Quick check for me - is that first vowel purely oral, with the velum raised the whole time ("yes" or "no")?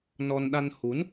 yes